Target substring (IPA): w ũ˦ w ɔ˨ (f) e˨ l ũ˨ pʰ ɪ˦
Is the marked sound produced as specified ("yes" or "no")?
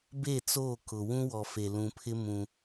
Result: yes